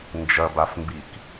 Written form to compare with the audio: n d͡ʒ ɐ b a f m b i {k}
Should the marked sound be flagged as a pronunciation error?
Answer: no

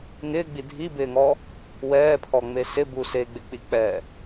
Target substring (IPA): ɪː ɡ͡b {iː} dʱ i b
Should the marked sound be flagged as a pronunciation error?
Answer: yes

